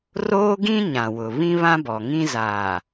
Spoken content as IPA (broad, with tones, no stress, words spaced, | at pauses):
roː˦ɡĩ˦ ɲã˨wʊ˨ βĩ˦βã˦bɔ˨ŋĩ˦ zaː˨